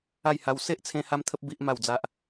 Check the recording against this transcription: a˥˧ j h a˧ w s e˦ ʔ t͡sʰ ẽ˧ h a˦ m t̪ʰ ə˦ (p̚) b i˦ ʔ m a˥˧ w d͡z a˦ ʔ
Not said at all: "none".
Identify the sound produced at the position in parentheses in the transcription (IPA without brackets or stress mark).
p̚